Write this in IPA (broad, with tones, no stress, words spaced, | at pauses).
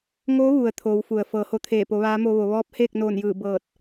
ŋo˧˥ ʋu˩ə̯ t̪ʰoː˩˧wfu˩ə̯ fɤː˩˧ho˧t̪ʰeː˧˩ po˩˧ʋaː˧˥mo˧ʋo˩˧ ʋɔː˧˥p̚heː˥˨k̚noː˧˩njɯː˧˩ bɤː˧˩t̚